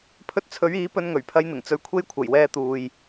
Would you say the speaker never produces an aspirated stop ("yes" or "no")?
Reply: no